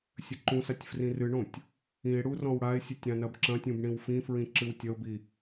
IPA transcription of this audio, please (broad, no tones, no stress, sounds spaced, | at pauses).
sʲ ɘ ǃ ũ s a tʲ f r ĩ r ɨ ɳ õ tʲ | ĩ e̯ ɽ u r ɔ̃ w ɽ a e̯ sʲ ɨ tʲ ɾ ã n ɐ b ǁ ɐ̃ tʲ ũ b ɳ ĩ w f ĩ f ɹ ĩ ǁ ɨ w tʲ ɐ o̯ b i